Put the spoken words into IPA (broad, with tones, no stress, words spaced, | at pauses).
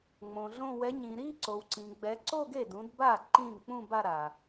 ŋ͡mõ˨ɮõ˥˧ wɛ˨˦ɲĩ˨ɾi˥˧ ǀo˨wǀĩ˨ɡ͡bɛ˨˦ ǀo˥˧ɡe˥˩dũ˨˦dba˥˩ ǃĩ˥˩ŋ k͡pũ˥˧ ba˥˧ɾa˨